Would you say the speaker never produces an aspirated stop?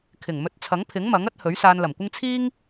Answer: no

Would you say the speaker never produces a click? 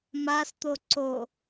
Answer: no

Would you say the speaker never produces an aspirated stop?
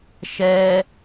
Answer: yes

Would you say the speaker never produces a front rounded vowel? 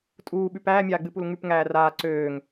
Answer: no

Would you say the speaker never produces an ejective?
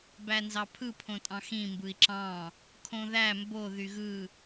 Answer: no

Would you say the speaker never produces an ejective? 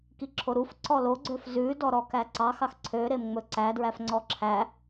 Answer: yes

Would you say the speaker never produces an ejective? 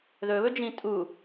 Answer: no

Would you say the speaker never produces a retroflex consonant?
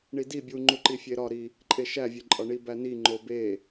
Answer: no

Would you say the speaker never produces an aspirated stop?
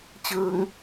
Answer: yes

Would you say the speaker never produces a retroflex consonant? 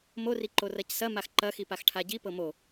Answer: no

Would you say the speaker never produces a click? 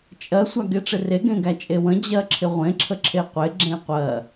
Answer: no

